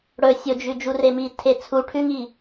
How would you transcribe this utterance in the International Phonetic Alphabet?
ɽɵ sʲod͡ʒʉ d͡ʒuremi tʰet͡sʰu ʈʰʉŋi

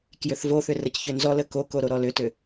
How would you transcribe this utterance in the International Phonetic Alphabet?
kjʏθvoθʏ rəcçʏnzɔlə koko ɾoɾɔlʏtʏ

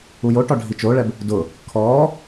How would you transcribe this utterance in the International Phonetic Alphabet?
ujoʈɔ ɖʱit͡ʃoɭɛb | dʊ | kʰɔː

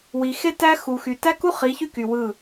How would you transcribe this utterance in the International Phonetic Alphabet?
wi˨ xe˦ tæ˦ xu˨xy˨ tæ˦ku˦ χi˨˦çy˦ky˨ wɯ˦˨

